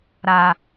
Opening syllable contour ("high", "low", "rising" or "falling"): low